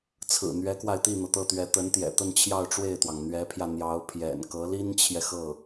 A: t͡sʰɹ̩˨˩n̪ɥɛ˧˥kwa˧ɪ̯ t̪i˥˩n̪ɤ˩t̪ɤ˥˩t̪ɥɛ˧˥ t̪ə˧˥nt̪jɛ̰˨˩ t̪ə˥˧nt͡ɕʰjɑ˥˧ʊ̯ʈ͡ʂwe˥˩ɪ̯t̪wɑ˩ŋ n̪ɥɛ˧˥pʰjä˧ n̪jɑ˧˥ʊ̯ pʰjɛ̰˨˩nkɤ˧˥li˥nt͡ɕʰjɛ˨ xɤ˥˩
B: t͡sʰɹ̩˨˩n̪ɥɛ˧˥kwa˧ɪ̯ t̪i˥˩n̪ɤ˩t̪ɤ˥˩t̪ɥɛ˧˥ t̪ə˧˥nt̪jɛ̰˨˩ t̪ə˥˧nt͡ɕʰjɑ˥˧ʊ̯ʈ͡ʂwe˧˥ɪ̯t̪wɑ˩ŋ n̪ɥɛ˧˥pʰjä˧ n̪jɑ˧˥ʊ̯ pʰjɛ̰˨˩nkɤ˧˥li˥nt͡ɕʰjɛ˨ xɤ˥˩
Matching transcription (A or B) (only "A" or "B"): A